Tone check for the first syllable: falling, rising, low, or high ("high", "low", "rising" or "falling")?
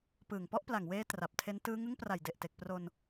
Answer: low